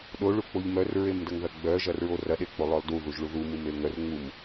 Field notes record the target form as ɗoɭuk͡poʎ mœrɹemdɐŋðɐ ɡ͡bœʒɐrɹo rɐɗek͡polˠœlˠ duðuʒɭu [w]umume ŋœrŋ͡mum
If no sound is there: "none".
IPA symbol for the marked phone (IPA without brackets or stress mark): ð